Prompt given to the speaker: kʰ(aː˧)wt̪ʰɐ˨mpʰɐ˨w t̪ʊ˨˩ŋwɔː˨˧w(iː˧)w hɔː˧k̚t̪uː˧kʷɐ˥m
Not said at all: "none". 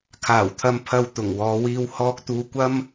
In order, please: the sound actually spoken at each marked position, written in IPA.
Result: aː˨˩, iː˧

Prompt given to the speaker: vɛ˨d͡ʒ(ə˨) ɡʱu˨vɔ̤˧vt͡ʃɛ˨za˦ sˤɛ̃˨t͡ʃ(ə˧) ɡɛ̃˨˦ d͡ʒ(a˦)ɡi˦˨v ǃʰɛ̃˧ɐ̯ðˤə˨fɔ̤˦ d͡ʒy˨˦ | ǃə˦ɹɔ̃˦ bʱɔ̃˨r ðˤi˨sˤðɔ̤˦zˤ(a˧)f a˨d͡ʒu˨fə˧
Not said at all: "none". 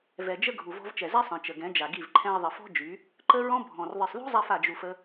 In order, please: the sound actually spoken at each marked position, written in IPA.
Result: ə˦, ə˨, a˨, a˧

